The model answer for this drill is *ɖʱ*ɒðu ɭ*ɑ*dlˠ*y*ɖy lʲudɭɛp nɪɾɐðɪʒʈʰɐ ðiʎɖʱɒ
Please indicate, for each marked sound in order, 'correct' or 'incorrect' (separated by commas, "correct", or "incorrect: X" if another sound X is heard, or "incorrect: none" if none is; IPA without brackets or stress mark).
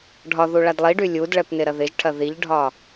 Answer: correct, incorrect: a, incorrect: i